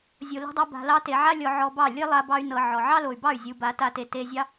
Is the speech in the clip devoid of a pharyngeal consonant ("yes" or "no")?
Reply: no